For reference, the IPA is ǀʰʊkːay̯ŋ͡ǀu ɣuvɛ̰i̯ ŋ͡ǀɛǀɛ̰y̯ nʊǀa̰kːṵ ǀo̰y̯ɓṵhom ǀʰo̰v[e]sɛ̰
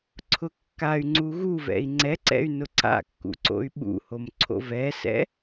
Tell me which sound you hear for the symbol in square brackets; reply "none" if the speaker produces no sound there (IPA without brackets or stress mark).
ɛ